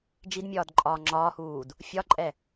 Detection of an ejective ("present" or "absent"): present